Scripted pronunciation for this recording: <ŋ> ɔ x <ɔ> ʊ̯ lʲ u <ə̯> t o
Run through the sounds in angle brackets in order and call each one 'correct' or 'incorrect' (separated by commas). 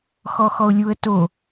incorrect, correct, correct